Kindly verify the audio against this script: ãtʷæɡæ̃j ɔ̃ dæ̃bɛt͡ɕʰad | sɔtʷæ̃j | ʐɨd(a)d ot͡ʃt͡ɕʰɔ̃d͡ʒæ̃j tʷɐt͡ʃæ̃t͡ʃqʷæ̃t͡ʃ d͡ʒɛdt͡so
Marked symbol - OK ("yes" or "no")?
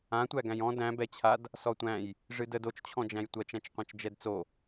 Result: no